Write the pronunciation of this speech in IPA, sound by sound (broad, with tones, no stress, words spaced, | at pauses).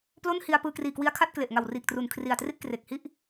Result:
plo˥˩nhi˧a̯ pɯː˧kriː˨˩kwi˧a̯kʰa˥˩t̚ kle˨˩ʔŋa˨˩wriː˨˩k̚tru˨˩n kʰri˨˩a̯tri˥˩t̚kre˨˩k̚hi˥˩ʔ